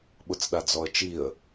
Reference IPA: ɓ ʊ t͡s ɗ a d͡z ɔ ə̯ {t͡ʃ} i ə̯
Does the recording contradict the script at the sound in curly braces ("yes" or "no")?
no